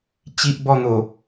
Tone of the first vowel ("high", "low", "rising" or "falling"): high